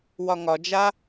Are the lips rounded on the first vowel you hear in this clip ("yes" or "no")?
yes